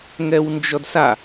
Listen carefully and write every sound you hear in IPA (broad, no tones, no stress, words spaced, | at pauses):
ŋɛwnd͡ʒɔdsa